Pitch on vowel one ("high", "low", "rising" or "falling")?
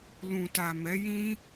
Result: low